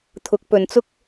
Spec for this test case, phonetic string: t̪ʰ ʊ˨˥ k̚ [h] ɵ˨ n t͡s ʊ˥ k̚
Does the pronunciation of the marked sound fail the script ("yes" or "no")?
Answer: yes